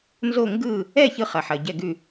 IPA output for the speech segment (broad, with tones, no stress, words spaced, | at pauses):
nzo˥˩ŋɡɯ˥˩ | ɛ˥˩çɯ˧˩χɐ˩ ħɐ˩ɟɛ˧˩ɡʉ˧˩